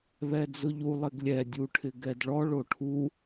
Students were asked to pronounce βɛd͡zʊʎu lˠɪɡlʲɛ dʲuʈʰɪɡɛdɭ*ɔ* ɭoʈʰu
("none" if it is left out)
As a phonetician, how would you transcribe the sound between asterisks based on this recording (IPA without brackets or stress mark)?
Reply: ɔ